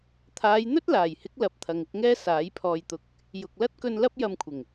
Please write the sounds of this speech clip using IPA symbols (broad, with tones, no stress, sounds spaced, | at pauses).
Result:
t̪ʰ aː˨˧ j n̪ ɵ˥ t̚ l aː˨˩ j h ɪ˨˥ k̚ l ɐ˨˥ p̚ t̪ʰ ɐ˨ ŋ ɪ˨ k̚ ŋ ɛː˧ s aː˨˥ j pʰ ɔː˧ j t̪ ʊ˧ k̚ | j ʊ˨ k̚ l ɐ˥ t̚ k ɵ˧ n l ɐ˥ p̚ j ɐ˧ m kʷʰ ɪ˨˩ ŋ